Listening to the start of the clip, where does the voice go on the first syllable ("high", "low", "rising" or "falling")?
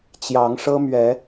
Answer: rising